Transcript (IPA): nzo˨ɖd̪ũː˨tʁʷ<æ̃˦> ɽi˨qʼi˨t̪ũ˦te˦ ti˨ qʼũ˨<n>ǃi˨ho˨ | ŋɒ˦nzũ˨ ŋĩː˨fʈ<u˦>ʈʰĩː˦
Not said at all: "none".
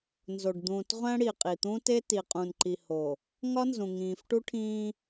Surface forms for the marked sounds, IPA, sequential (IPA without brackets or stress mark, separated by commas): æ̃˦, n, u˦